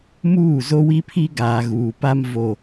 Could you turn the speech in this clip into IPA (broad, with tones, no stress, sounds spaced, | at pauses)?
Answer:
m uː˦˨ z o˦ w i˦ pʰ i˦ ɡ aː˨ ɣ uː˨ p a˦ m v o˦